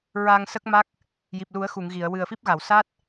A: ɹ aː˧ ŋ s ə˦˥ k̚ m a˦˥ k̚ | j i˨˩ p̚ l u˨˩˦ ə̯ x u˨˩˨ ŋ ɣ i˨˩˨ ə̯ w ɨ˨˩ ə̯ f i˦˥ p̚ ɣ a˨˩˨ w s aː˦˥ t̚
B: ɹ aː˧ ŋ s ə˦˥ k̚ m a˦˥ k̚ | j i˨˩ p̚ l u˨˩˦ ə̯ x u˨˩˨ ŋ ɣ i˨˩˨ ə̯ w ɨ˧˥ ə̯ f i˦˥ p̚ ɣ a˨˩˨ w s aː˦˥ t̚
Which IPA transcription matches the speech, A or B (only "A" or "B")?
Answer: A